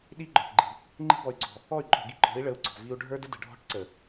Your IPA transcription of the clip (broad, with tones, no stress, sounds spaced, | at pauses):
ɗ i˦ ɡ͡ǃ ɔ̤˨ ʈ ɡ͡ǃ i̤˨ | ŋ͡ǃ i̤˦ b ɔ˨ y̯ ɡ͡ǀ ɔ̤˨ | ɔ˦˨ y̯ ǃʼ ɔ̤˨ ɡ i˦ ǃ ɔ̤˨˦ i̯ ɭ ə˨˦ u̯ ɡ͡ǀ ɔ̤˨ v i˦ u̯ ɖʱ ə˞˦ d ə˦ d ə̤˨ ɖʱ ɔ̤˦ ʈ ǀ ə˨